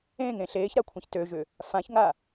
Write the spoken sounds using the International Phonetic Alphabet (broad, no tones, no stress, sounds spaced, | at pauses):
ẽ ŋ ẽ ɬ eː ç ɾ a kʷʰ ã ç t ø ʒ ʏ | f ã ç ŋ a